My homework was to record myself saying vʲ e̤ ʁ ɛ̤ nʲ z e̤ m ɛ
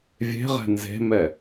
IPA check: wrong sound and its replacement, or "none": nʲ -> n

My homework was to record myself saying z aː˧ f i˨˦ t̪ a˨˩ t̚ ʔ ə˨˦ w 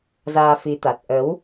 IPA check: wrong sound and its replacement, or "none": none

